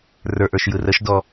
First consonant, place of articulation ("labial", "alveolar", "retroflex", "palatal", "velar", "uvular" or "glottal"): alveolar